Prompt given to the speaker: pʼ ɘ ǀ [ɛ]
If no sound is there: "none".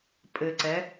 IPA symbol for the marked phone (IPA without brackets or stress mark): ɛ